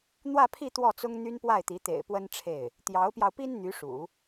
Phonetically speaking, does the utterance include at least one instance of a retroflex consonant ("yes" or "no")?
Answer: yes